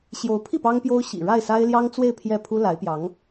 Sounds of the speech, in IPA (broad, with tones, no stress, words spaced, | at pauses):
ɕjo˧˥ʊ̯pʰi˥˩ pɑ˥ŋpjo˥ʊ̯ ɕḭ˨˩ɻa˥˩ɪ̯sa˥ɪ̯ ljɑ˥ŋt͡swe˥˧ɪ̯ pʰjɛ˥˩pʰu˥la˧˥ɪ̯pjɑ˧˥ŋ